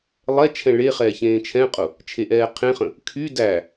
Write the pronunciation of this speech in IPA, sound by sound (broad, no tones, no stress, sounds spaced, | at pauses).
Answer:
lˠ ɛ t͡ʃʰ ɛ̃ ɭ e χ ɛː ç ẽː t͡ʃʰ ɛ̃ qʼ ʊ | t͡ʃʰ e ʔ ɛː qʰ ẽ χ ə̃ | kʰ y d æ